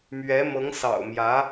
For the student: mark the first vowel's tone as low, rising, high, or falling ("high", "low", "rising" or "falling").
rising